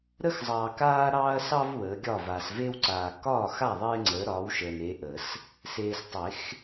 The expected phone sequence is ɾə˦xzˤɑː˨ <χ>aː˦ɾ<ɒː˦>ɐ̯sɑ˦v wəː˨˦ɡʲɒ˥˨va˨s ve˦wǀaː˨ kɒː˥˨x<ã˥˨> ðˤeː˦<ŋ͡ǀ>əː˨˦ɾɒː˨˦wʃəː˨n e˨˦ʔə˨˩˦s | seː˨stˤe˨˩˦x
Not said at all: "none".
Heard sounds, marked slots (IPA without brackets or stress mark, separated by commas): k, ɑː˦, a˥˨, ŋ͡ǀ